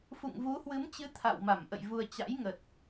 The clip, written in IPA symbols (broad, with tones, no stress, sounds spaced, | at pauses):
f ṵ˧˨ ŋ v u˨˦ h w ɨ˨˦ m t͡ɕ ɨ˨˦ t̪ʰ a̰˧˨ w m a˧˩ m ʔ ə̰˧˨ j v u˧ ə̯ t͡ɕ a̰˧˥ j ŋ ə˨˩ t̚